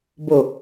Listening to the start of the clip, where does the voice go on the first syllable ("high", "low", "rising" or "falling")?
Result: low